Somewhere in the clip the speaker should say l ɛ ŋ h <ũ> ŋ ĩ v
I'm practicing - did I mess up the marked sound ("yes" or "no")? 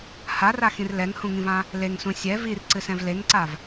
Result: no